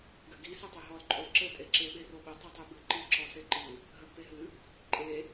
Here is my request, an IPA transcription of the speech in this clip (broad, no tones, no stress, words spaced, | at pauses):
ɡɘɡi sɨtˤeɦɔl ǃʼolǁɘ tʼeǁe ɓeroɓɘ tˤɨtˤebɨ ǃɨ ǁɔseǃɨ | ɦɐɡpeɦɨ | ǃʼe